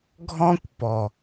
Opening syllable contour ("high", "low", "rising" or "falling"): high